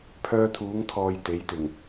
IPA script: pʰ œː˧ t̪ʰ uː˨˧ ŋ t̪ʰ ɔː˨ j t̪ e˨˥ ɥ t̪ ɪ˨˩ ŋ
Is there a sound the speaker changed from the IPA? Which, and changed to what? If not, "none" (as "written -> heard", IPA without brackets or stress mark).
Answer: ɥ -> j